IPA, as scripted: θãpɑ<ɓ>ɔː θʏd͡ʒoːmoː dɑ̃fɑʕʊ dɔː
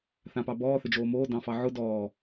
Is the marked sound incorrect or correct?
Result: incorrect